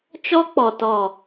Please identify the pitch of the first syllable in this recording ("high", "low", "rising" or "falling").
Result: high